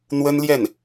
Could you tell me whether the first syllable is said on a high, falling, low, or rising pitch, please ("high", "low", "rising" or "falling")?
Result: high